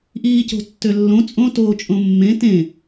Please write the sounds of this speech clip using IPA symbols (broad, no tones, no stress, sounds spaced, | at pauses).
ʔ iː c o̤ tː ø lː õ t͡sʼ õ t oː t͡ʃʼ õ mː ẽ t ẽ